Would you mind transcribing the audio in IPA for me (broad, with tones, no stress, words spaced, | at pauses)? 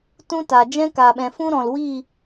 tũ˦ta˨ d͡ʒɛ̃˦ ka˨ɓɛ̃˨fũ˦ɾɔ̃˨l wi˦˨